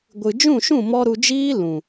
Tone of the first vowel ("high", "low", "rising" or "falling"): low